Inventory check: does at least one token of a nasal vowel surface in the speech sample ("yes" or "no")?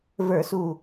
no